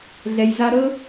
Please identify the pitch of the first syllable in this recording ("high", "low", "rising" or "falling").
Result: low